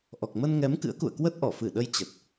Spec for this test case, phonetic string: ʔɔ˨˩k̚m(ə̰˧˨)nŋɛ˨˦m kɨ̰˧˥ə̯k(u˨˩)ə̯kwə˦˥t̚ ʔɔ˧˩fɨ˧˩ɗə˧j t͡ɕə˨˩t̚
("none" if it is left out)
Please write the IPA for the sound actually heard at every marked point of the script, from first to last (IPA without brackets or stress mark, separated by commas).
ə˧, ṵ˧˨